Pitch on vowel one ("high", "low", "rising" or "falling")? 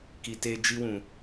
low